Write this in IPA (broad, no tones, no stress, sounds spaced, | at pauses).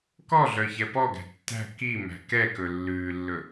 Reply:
k ɔ ɮ œ ç ɛ p ɔ ɡ æ̤ tː æ̤ k i m æ̤ k ɛ k ɵ lː ʉː lː ɵ